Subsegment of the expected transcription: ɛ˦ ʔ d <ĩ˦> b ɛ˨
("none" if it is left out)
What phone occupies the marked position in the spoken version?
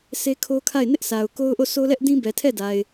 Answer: ĩ˦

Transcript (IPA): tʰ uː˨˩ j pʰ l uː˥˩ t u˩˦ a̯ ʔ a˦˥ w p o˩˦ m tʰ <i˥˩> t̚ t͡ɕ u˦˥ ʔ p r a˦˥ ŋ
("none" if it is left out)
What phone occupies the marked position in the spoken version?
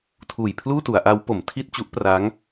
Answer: i˥˩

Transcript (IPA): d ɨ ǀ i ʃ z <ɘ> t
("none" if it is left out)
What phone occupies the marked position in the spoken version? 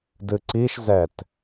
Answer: ɛ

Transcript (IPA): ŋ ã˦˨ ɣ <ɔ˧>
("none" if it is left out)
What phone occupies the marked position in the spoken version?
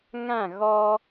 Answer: ɔ˧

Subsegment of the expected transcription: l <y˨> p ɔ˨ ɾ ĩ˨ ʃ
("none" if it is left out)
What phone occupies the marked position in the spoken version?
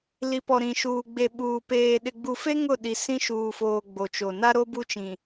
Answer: i˨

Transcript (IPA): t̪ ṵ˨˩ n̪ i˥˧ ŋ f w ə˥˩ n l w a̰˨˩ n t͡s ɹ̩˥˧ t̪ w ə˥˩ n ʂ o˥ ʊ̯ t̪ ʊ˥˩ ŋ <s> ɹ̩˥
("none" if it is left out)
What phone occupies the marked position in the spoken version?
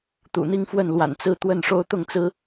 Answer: t͡s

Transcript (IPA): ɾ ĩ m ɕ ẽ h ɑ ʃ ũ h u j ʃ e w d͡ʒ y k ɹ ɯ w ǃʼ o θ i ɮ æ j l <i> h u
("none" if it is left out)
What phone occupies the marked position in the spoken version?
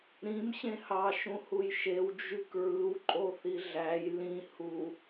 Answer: ĩ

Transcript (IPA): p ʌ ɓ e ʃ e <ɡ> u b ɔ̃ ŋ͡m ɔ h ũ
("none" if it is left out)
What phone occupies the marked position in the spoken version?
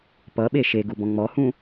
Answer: ɡ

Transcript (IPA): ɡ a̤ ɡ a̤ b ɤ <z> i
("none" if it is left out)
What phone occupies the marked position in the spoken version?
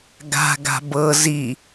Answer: z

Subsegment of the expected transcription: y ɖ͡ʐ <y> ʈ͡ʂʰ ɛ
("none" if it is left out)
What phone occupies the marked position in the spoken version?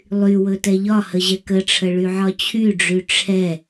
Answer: y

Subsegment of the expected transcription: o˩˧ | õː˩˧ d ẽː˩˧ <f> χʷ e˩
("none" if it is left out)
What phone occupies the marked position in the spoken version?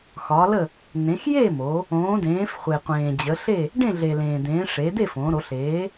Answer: f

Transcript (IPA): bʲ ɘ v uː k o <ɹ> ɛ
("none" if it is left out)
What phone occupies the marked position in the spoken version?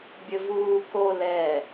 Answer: l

